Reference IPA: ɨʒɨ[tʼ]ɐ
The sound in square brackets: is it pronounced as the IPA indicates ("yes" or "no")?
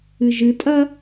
yes